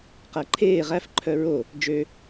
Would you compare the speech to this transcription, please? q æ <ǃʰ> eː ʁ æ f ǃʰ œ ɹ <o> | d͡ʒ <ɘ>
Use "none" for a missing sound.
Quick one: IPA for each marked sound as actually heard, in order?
ǃʰ, o, ø

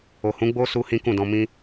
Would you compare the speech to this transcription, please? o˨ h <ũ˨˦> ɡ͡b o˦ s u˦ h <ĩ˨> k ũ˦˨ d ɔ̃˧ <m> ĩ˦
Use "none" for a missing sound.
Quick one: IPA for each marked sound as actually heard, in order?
ũ˨˦, ĩ˦, m

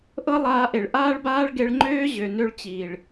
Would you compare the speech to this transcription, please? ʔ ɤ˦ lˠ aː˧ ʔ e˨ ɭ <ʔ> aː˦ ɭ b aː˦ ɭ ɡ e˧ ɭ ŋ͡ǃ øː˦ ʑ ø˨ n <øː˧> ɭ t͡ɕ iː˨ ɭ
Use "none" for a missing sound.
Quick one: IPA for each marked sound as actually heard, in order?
ʔ, ø˧

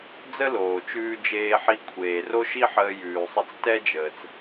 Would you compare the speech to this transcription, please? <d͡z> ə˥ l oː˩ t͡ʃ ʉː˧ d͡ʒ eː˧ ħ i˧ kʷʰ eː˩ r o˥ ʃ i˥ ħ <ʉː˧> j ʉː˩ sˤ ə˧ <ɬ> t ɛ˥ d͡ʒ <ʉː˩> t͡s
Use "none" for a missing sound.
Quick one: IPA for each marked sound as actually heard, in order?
d͡z, əː˧, t͡s, əː˩

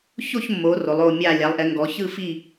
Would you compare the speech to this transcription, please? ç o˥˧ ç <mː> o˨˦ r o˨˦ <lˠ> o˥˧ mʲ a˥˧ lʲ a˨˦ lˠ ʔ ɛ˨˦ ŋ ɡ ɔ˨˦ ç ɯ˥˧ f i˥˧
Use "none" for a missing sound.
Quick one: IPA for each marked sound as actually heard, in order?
mː, lˠ

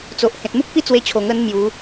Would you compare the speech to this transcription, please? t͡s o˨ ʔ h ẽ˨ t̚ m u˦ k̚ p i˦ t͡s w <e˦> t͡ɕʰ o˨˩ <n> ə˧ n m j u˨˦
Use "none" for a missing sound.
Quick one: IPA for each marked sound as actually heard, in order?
e˧, ŋ

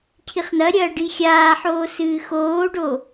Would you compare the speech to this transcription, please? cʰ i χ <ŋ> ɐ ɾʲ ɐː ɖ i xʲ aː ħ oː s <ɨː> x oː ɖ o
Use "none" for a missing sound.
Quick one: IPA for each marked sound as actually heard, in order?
n̪, ɨː

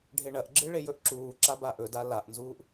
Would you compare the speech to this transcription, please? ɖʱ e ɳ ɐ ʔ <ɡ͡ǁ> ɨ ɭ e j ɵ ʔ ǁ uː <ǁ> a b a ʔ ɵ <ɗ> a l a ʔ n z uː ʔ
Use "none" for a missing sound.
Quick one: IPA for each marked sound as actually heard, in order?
ɡ͡ǁ, ǁ, d

